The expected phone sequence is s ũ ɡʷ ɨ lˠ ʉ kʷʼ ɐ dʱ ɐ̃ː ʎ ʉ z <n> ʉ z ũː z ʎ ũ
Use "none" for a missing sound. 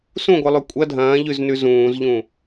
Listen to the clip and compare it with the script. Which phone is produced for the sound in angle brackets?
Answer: n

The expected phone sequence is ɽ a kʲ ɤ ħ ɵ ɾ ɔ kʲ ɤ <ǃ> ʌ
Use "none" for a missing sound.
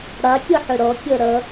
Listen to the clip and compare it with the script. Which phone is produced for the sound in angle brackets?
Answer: ɾ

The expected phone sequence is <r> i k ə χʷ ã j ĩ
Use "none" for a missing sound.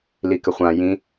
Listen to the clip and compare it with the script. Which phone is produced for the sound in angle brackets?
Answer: l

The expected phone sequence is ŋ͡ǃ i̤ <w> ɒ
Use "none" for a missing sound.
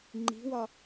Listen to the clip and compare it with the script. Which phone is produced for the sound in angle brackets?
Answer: w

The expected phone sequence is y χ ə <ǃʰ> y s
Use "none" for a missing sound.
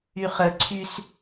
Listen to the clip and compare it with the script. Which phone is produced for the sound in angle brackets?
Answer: ǀʰ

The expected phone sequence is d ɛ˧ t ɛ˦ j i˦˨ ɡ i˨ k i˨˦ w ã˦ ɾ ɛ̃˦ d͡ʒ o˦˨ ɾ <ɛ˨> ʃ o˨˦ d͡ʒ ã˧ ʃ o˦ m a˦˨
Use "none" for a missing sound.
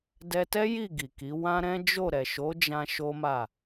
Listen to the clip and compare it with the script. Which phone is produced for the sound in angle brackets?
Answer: ɛ˨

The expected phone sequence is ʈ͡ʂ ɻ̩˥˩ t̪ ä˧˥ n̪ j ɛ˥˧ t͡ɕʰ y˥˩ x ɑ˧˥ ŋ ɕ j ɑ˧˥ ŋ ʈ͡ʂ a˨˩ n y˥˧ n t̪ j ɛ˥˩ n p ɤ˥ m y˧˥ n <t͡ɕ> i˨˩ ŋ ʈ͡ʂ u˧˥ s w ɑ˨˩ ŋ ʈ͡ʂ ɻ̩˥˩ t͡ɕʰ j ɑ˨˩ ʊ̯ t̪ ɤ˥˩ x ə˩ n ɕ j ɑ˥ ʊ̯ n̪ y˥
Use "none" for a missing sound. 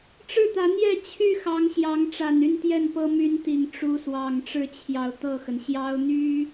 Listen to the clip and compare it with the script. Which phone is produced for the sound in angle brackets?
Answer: t̪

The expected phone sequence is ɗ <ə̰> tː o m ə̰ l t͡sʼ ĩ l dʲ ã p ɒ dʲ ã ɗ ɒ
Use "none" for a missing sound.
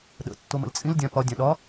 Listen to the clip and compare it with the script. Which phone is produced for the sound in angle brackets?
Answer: ə̰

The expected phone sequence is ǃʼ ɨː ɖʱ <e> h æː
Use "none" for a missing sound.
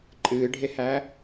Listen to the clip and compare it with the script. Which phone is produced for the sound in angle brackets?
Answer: e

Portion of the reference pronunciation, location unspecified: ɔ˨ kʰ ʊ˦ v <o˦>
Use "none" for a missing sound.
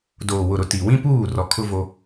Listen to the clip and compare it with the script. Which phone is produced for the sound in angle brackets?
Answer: o˦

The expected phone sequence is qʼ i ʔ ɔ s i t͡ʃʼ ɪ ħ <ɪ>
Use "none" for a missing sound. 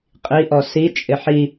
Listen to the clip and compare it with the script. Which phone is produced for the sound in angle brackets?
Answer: i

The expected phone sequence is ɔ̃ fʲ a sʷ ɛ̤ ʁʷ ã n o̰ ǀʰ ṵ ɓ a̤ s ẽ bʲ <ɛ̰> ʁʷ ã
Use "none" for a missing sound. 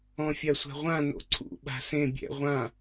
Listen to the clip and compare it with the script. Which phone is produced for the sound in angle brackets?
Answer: ɛ̰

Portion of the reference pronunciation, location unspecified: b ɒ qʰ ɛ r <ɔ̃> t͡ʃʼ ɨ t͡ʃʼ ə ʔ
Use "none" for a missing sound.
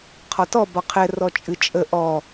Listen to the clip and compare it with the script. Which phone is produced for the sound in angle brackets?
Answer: ɔ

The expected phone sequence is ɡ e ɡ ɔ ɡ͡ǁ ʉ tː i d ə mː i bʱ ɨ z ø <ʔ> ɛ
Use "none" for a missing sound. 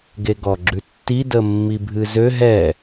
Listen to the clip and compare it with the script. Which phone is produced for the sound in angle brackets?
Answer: ɦ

